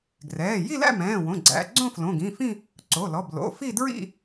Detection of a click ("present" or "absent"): present